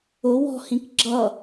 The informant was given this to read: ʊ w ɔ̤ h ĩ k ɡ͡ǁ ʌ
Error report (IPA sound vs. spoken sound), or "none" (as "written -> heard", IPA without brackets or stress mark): none